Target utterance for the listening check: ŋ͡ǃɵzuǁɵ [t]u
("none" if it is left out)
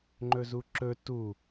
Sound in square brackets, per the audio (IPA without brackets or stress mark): t